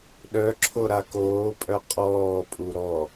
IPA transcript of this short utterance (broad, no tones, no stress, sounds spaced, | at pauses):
ɗ œ ǁʰ o ɾ a k oː pʼ œ qʼ ɔː pʼ u ɾ ɔ